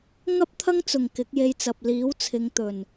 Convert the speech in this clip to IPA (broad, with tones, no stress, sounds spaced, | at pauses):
ŋ ɐ˥ p̚ t̪ʰ ɐ˥ ŋ t͡s ʊ˨˩ ŋ k ɪ˨˥ k̚ j e˧ j t͡s ɐ˨ p̚ l iː˨˥ w t͡sʰ ɪ˨˧ ŋ t̪ ɵ˨˩ n